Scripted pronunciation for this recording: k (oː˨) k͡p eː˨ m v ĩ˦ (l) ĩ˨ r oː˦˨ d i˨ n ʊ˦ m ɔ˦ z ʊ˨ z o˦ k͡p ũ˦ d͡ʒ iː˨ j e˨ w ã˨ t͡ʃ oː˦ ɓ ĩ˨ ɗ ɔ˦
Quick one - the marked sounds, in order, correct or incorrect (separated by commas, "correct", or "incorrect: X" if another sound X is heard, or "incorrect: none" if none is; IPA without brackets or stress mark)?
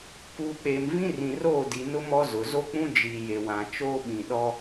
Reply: incorrect: uː˨, incorrect: r